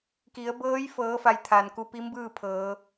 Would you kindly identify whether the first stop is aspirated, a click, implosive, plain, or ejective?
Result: plain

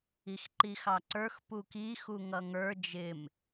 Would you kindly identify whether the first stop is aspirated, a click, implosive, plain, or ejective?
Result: click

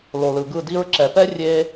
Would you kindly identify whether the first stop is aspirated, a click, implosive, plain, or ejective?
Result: plain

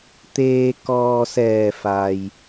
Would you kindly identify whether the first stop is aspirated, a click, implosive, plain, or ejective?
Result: plain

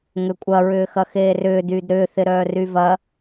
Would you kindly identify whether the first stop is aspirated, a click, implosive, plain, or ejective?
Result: ejective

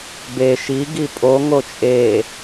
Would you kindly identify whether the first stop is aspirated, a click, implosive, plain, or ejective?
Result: plain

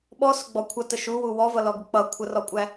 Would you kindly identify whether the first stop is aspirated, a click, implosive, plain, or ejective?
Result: implosive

